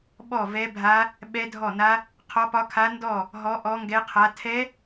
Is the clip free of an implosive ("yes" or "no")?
no